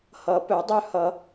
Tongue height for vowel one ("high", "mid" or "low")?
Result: mid